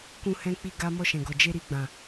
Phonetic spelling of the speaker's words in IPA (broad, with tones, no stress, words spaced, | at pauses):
kũ˧hɛ̃˧k͡pi˧ ɡa˦ mɔ˧ʃɛ̃˨ɡɔ˨ d͡ʒe˧ɾi˧ɡ͡bã˨